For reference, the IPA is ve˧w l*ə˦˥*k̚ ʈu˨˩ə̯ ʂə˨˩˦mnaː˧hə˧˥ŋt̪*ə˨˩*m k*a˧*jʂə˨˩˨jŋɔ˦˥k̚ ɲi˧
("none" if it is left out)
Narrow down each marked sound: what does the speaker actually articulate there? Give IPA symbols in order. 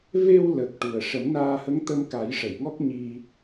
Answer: ə˨˩, ə˧, a˨˩˦

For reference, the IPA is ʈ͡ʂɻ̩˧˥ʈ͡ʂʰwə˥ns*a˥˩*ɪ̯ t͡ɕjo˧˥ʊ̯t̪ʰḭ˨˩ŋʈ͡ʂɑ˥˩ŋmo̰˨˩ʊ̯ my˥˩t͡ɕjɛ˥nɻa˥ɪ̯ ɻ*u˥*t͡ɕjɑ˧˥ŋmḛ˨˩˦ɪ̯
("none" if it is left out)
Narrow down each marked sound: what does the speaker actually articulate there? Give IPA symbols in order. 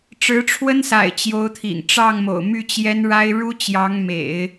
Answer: a̰˨˩, u˥

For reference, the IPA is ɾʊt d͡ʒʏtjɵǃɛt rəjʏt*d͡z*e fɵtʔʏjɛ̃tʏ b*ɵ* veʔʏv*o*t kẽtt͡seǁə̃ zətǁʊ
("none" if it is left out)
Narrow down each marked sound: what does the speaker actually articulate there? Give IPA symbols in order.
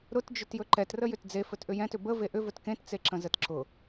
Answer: d͡z, ə, ɵ

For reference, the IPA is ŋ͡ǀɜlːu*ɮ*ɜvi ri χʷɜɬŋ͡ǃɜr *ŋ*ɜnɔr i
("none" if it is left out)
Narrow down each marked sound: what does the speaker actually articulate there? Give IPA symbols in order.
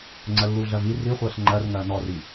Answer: ɮ, ŋ

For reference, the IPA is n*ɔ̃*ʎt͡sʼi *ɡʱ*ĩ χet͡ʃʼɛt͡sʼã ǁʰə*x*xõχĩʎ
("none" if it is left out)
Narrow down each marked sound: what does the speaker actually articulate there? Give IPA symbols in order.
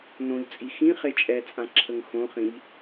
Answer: õ, x, ŋ

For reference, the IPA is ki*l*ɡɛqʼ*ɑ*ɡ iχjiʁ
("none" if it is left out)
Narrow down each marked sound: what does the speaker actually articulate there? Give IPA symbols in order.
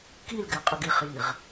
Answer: l, ə

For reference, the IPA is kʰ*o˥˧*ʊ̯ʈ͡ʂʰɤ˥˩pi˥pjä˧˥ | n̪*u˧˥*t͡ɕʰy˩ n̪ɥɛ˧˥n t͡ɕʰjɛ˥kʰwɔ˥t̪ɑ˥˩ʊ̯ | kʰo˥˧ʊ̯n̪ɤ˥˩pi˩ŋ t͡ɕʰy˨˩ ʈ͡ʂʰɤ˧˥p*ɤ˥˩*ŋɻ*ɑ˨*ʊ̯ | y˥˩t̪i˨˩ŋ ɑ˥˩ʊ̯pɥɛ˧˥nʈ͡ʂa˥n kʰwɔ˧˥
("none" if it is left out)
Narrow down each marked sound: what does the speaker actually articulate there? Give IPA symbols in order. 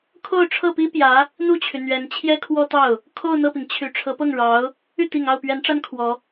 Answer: o˥˧, u˥˩, ɤ˥˩, ɑ˧˥

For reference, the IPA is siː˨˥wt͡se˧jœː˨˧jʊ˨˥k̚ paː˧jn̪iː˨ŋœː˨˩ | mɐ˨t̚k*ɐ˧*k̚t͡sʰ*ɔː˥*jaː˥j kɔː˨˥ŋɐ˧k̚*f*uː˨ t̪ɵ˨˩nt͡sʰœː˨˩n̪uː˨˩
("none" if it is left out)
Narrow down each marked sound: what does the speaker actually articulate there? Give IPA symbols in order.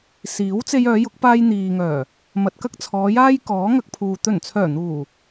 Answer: ɐ˥, ɔː˨˧, pʰ

